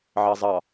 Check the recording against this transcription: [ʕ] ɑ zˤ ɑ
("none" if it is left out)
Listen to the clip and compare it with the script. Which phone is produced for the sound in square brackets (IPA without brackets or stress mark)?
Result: ʕ